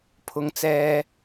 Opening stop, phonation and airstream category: aspirated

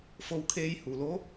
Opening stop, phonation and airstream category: aspirated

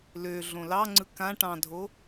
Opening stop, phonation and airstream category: click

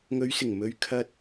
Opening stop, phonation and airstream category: aspirated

